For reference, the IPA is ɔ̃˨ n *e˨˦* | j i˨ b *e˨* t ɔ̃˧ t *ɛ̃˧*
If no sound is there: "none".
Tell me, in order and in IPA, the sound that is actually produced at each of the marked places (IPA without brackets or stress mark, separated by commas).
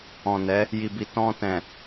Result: ɛ˨˦, i˨, ɛ̃˨